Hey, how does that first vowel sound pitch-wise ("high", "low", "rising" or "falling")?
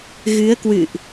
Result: rising